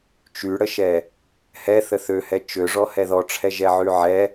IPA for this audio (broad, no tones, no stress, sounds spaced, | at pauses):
t͡ʃ y ɽ ə ʃ ɛ | h ɛ θ ə θ ø h ɛ t͡ʃ ø ʐ ɔ h ɛ ð ɔ ʈ͡ʂʰ ɛ ʒ ɛ ʕ y ʕ ɛ